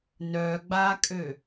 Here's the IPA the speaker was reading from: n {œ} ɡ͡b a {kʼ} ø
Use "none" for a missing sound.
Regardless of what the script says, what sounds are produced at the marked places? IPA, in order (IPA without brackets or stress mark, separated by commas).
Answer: œ, kʼ